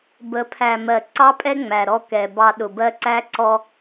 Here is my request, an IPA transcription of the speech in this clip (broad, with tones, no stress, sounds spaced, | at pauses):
b ə˨˦ pʰ æ˨ m ɜ˨ ǀ ɑ˦ pʼ ɛ˦ ŋ͡m æ˨ ɾ ɔ˦ k ɛ˨ b ɑ˦ ɗ ʊ˨ b ɜ˦ ǀ æ˦ ǀ ɔ˦